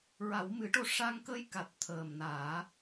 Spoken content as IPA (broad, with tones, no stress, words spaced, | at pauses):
ɹa˨˩˦wmɨ˨˩˦ʈo˧ ʂa˧ŋkə˧j ka˨˩t̚t̪ʰəː˨˩mnaː˨˩˦